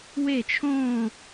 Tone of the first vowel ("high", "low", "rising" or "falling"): falling